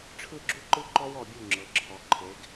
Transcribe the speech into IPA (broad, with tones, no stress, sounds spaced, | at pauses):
ʈ͡ʂʰ ɯ˥˩ ɡ͡ǁ u˦ ǃ ɯ˦ ǃ ɔ˦ w ɔ˥˩ bʲ u˥˩ ŋ͡ǁ ɤ˩˧ ǁʰ ɔ˩˧ ǃʰ e˩˧ ɡ